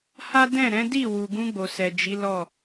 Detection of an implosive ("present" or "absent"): absent